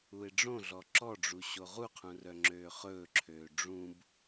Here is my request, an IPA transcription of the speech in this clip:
u e̯ ɖ͡ʐ õ ɮ ɔ ǁ ɔ ɖ͡ʐ u ɕ o ʁ u qʰ ũ r œ ŋ͡ǁ øː χ ɵː ǁʰ øː ɖ͡ʐ ũ b

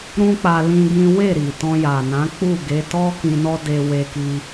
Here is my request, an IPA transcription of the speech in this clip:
ɾ ũ˦ k͡p a˧ l ĩ˦ ɡ ĩ˦ w e˦˨ ɾ i˨ t ɔ̃˧ j a˨ n ã˨˦ k͡p u˦˨ ɡ e˨˦ t ɔ˦ k ĩ˧ n ɔ˦ d e˧ w e˧ k i˧

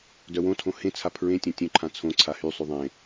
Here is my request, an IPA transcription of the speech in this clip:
d œ w õ tʰ õ h ẽ t͡sʰ a pʰ ɹ ẽ tʲ ã tʲ œ̃ ǃʰ ã t͡sʰ õ ǀʰ a h y sˤ y ðˤ ẽ

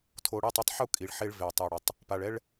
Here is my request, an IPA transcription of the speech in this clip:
tʰ o˨ ɽ i˦˨ tˤ ʌ˦ tˤ ħ u˦ kʼ i˨ ɭ ħ e˦ ɭ v e˨ tˤ e˨ ɽ ʌ˨ tˤ | p a˨ ɭ ɛ˦ ɭ

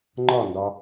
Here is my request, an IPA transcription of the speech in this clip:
ŋ͡ǃ ɒ n d ɒ

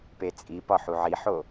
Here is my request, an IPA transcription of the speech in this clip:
p e t͡sʼ i p ɒ ħ u ʕ i ħ o

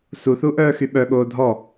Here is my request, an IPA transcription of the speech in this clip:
s u θ u ʔ œː x y ɓ œ ɠ oː dʱ ɔ

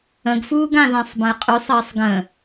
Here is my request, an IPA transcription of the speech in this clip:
ə̃ ɡ f uː ɡ ã ð ã sˤ b ə̃ j qʼ y sˤ əː sˤ ɡ ə̃

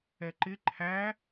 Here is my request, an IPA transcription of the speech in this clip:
ɛ ǃ ɪ ǃʰ æ

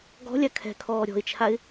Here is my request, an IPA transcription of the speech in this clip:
ɡ ɔ̤ lʲ a kʰ ɛ̤ kʰ ɔː ɾʲ ɔ̤ ɪ̯ t͡ʃʰ a ɪ̯

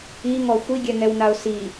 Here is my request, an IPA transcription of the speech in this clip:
i ŋ ɔ xʷ i ɡʲ ɛ ŋ ɛ w n a ʊ̯ s i

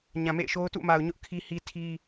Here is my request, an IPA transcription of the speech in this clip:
ɲ ã˨ m ḛ˦˨ ɪ̯ ʃ o˦ ʊ̯ t ṵ˦˨ m a˨ ʊ̯ ɲ ʊ˦ ʔ kʰ i˦ h i˦ tʰ i˦

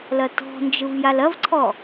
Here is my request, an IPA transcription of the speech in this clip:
l ɐ t ɔ̤ n d͡ʒ ɯ v j a l ɐ v ǀʰ ɔ

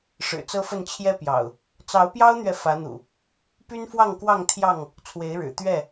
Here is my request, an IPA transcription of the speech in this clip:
ʂ ɻ̩˨˩ t͡s ɤ˦ f ə˥˨ n t͡ɕʰ j ɛ˦ p j ɑ̰˨˩ ʊ̯ | t͡s ɑ˨˦ ʊ̯ p j ɑ˦ ʊ̯ n̪ ɥ ɛ˨ f ä˨˦ n̪ ṵ˨˩ | p y˦ n f w ɑ˥˨ ŋ k w ɑ˥˨ ŋ t̪ʰ j ɑ˥˨ ŋ | t͡sʰ w e˨˦ ɪ̯ ɻ ɻ̩˨˩ t̪ ɥ ɛ˥˨

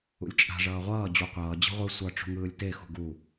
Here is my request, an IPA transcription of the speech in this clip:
ṵ lʲ t͡ʃʼ a̤ ʐ ʌː ʁʷ ʌː d͡ʑ u qʷ ʌː d͡ʑ i̤ ʁʷ ɯ sʷ ʌ ʈ͡ʂ ṳ ŋ ɯː lʲ t e x ṳ ɡ u

